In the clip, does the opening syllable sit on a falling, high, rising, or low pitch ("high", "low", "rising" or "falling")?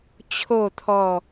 falling